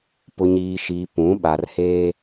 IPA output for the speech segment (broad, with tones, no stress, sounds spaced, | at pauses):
p ʊ˨ ɲ iː˨ ʃ iː˨ p ũ˨˦ ɓ a˨ r h eː˦